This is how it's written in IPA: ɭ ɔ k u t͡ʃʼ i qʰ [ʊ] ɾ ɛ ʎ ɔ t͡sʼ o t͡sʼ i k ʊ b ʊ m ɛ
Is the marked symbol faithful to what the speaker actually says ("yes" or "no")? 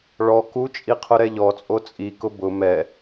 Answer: yes